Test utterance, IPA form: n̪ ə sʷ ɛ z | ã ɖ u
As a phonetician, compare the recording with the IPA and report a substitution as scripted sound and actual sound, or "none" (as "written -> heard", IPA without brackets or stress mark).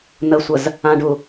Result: ɛ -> ə